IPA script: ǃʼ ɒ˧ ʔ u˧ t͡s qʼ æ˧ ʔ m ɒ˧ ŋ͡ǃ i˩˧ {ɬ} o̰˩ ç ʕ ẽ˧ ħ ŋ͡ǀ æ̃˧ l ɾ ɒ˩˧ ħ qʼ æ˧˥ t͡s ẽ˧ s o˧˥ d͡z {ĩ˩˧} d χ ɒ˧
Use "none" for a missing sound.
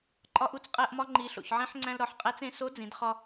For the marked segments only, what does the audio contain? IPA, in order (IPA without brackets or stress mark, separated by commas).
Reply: ɬ, ĩ˩˧